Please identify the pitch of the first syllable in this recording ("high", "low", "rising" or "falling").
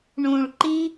low